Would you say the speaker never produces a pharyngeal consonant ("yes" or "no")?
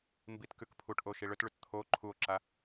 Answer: yes